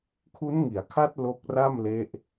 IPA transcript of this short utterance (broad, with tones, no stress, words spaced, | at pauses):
kʰu˦˥nŋi˩˦a̯kʰa˦˥t̚ lo˦˥k̚ra˥˩mle˦˥ʔ